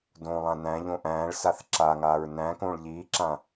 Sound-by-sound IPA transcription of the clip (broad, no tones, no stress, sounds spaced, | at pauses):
d õː lˠ ã n æ̃ ʎ õ ʔ æ̃ː ɭ s a θ ǁ a ŋ aː ɹ n æ̃ː k õː ɭ ʎ iː ǁ ã